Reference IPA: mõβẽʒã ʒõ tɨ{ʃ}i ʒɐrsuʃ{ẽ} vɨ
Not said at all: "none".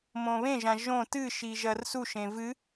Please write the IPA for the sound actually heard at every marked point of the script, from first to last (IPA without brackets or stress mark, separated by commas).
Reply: ʃ, ẽ